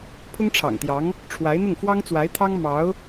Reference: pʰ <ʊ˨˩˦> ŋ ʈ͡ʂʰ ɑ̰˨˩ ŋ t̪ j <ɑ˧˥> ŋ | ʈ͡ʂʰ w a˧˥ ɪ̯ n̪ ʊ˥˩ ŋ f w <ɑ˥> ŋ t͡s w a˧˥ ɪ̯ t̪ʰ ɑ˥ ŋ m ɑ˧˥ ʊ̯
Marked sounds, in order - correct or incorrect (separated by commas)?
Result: incorrect, correct, correct